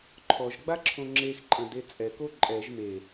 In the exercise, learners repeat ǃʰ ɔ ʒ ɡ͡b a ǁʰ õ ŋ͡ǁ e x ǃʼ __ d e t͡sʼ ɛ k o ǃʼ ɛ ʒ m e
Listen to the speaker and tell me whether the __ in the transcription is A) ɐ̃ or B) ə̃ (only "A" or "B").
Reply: A